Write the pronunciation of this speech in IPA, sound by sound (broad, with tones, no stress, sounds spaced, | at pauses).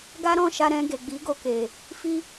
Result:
ɡ a˦ ɾ ɔ̃˦˨ ʃ a˧ ɾ ɛ̃˧ ɡ e˨ ɡ͡b i˨˦ ɡ o˧ k e˨ | f i˦